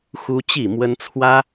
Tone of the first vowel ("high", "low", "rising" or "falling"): high